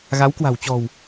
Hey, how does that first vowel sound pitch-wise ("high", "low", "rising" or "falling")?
rising